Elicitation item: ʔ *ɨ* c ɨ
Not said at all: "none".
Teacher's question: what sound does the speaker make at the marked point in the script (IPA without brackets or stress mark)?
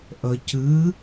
ə